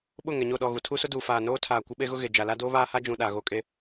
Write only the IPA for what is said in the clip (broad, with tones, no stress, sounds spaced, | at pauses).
ɓ ʊ˦˨ ŋ ɛ˨ ɲ o˦˨ ɗ ɔ˦˨ ɣ u˨ tʰ u˦ s ʊ˦ d uː˨ f aː˨ n oː˦ tʰ aː˨ kʷ ɪ˦ ɓ e˦ ɣ ʊ˦ ɣ e˨ d͡ʒ a˨ l a˦ d oː˦ β aː˦ h a˦ d͡ʒ ũ˨ ɗ a˨ ɣ o˦ kʼ e˦